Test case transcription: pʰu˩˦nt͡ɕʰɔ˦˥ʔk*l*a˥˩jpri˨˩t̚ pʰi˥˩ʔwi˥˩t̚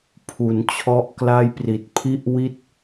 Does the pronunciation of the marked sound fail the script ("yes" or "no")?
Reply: no